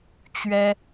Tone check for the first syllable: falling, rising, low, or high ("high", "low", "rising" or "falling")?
high